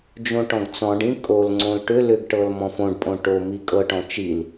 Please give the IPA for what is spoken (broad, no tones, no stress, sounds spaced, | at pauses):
d͡ʒ õ ʈ ɔ̃ ɡ t͡s ɔ̃ ɖ ĩ kʼ o l ŋ͡ǀ õ l ʈ ʏ l ʏ ɡ ʈ ɤ l m ɔ̃ f õ ɖ pʼ õ ʈ o m i kʼ ɤ ʈ ɔ̃ t͡ʃ i l